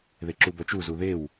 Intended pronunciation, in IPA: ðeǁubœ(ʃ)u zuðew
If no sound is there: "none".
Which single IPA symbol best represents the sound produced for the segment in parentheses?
t͡ʃ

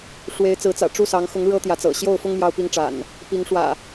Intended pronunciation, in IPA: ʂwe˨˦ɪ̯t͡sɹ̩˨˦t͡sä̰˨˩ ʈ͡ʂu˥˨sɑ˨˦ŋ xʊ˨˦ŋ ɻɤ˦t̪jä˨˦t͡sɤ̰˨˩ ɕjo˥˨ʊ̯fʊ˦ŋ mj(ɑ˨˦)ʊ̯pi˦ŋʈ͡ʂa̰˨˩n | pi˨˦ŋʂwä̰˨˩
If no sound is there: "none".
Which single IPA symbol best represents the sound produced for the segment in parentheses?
ɑ˦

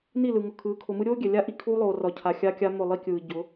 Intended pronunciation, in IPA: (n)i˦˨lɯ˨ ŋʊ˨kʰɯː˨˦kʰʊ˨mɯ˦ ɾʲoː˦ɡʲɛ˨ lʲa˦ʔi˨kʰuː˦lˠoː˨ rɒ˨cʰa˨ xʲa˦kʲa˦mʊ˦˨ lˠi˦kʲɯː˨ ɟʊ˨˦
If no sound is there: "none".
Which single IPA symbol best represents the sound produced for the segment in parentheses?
n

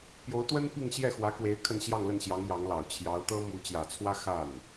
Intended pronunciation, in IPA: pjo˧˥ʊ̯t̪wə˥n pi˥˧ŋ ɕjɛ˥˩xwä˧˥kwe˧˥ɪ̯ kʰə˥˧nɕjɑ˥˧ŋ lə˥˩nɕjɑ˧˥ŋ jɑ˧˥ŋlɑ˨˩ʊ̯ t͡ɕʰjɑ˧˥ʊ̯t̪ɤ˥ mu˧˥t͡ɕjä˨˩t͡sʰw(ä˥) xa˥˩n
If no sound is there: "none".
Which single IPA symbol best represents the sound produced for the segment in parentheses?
ä˥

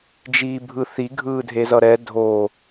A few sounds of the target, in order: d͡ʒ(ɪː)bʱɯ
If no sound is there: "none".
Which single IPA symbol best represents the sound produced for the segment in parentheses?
iː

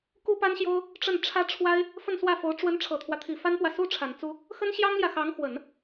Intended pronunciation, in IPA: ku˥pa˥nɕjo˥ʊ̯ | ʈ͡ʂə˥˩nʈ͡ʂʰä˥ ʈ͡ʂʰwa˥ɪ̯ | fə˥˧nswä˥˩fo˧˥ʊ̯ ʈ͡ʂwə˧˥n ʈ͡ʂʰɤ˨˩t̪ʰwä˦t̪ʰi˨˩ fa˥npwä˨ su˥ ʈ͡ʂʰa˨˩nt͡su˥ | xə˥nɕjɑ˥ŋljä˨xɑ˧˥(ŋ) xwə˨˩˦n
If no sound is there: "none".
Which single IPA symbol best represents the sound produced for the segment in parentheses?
ŋ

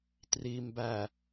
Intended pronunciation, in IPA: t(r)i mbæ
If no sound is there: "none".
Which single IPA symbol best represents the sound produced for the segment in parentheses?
r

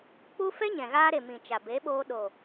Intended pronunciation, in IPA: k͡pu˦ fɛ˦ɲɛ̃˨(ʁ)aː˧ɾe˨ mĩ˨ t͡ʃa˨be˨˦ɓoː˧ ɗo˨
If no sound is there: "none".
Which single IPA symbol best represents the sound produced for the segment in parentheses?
ɣ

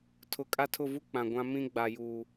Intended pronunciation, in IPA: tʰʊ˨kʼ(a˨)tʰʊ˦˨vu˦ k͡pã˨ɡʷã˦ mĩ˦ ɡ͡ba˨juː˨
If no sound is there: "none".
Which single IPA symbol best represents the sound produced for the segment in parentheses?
a˦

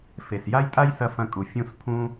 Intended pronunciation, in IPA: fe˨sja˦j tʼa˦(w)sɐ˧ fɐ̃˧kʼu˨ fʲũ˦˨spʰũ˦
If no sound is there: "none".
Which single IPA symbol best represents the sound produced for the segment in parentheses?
j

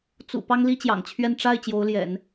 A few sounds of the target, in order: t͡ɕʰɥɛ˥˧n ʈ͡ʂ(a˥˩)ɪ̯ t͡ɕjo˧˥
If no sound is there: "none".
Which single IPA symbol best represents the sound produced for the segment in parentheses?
a˥˩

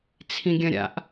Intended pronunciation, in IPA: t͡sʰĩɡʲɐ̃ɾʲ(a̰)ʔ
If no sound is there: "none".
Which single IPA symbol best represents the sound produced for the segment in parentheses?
a̰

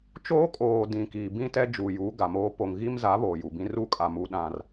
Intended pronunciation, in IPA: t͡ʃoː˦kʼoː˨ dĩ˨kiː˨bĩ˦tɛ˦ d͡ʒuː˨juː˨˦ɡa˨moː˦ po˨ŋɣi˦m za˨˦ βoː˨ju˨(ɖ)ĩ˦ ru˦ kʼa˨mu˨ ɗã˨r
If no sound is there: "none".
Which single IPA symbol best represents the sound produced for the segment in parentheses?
b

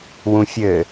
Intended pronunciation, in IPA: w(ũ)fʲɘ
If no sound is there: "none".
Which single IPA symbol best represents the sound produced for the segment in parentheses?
ũ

